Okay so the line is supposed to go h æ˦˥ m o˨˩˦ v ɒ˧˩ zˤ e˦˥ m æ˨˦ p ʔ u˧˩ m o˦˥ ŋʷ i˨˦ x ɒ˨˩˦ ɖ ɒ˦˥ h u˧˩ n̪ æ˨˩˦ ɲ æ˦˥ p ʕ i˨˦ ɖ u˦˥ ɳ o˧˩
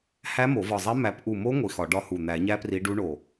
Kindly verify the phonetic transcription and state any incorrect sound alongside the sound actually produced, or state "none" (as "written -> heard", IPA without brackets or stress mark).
ʕ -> r